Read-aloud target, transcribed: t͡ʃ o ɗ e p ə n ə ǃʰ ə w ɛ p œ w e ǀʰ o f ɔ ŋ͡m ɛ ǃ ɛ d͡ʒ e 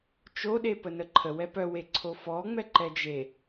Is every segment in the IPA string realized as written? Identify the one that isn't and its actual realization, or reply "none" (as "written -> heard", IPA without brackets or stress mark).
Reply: none